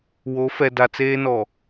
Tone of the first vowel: rising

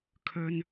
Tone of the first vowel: low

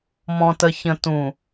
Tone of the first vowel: low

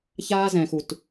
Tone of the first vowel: high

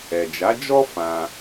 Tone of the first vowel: low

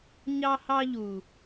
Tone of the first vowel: high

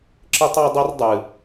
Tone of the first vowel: high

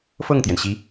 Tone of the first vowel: falling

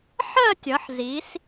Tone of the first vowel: falling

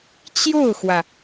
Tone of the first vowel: falling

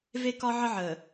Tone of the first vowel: high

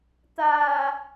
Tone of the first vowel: low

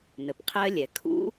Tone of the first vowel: low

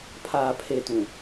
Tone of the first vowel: low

